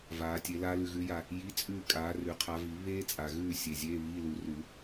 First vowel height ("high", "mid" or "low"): low